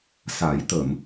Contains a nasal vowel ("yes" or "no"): no